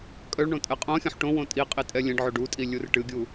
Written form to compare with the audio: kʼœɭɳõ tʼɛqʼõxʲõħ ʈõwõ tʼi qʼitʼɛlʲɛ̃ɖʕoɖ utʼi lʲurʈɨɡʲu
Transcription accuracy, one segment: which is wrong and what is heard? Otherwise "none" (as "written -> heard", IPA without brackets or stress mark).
none